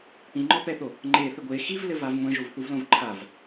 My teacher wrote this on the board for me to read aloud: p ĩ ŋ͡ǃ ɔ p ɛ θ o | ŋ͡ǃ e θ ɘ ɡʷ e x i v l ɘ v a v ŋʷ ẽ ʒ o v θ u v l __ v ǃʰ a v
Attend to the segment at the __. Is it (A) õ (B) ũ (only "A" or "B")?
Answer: A